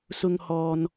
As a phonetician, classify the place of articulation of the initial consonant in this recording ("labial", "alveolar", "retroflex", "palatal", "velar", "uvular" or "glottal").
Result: alveolar